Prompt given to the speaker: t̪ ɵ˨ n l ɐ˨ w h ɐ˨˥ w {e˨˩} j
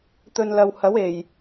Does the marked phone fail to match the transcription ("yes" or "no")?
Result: no